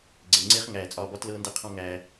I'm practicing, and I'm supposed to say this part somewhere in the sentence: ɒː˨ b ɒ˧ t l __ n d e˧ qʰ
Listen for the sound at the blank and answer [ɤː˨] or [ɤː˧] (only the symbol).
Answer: ɤː˧